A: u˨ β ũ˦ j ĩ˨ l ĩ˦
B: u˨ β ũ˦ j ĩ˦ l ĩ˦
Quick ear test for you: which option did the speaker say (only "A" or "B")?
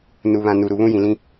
A